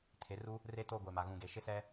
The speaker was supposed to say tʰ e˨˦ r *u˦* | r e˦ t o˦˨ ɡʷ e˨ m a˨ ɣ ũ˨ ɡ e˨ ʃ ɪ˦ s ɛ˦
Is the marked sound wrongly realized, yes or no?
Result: no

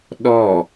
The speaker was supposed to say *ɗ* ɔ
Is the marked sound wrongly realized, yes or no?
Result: no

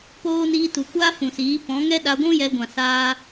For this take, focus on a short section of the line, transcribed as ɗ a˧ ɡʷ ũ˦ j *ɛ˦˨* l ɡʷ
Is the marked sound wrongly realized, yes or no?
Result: yes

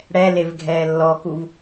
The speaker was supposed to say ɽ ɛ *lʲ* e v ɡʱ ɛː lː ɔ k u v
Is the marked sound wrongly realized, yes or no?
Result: yes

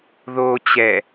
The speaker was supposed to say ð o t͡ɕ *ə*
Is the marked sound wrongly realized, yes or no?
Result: yes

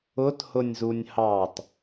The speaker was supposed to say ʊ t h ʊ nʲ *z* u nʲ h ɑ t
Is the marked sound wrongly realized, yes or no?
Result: no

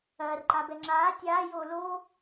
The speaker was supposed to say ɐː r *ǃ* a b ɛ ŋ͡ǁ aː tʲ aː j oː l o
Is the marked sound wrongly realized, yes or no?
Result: no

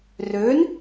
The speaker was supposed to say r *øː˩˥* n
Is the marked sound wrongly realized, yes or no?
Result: no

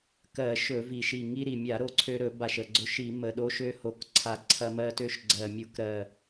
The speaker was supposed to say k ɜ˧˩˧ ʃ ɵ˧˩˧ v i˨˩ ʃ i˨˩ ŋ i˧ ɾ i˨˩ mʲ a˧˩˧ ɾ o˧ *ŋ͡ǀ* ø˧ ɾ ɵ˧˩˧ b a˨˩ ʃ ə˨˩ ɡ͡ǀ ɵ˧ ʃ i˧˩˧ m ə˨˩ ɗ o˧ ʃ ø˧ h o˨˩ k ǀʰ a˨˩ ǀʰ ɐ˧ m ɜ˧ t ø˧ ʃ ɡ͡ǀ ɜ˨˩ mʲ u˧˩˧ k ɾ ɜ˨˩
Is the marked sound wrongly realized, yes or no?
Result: yes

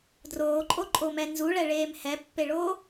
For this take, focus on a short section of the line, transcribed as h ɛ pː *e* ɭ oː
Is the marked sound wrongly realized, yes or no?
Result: no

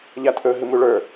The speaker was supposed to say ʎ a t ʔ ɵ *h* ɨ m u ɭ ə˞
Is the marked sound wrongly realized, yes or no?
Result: yes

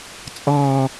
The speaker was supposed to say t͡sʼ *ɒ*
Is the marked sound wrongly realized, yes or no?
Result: yes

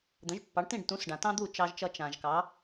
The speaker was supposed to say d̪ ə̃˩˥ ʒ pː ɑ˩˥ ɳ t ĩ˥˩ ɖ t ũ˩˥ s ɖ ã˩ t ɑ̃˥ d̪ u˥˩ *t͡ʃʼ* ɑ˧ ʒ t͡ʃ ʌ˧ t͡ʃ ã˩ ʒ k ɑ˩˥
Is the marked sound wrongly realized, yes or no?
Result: yes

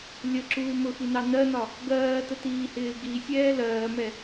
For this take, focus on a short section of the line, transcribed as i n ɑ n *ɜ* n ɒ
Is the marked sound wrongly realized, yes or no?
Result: no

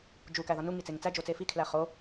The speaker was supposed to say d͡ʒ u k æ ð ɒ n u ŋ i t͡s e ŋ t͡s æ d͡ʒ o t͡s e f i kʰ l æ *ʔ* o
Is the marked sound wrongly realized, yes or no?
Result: yes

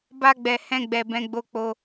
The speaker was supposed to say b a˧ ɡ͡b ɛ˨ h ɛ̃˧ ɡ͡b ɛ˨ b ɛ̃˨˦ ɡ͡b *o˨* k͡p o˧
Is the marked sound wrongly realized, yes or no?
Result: yes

